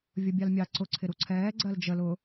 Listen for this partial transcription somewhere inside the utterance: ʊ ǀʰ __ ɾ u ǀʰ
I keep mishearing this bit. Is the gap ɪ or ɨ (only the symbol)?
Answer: ɪ